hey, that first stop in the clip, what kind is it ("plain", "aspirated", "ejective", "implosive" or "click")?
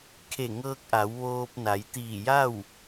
aspirated